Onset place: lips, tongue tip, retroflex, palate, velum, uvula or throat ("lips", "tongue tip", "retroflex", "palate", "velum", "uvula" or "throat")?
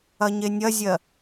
palate